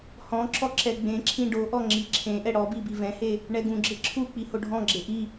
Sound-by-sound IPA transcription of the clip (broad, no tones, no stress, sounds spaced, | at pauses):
h ɔ̃ ǁ ɔ ǁ ɛ ɡ͡b ẽ ǁʰ ĩ ɖ o ʔ ɔ ŋ͡ǁ i ǁʰ ẽ ʔ ɛ ɽ ɔ b i b i v ɛ̃ h e | ɳ ɛ ɡ ũ ɡ͡ǁ e ǁʰ u k͡p i h o ɖʱ ɔ̃ ɡ͡ǁ e ʔ i